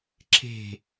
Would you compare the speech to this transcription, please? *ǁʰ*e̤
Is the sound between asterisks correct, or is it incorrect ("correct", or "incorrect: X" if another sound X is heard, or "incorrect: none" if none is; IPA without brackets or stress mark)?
correct